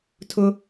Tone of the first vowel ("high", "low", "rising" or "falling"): high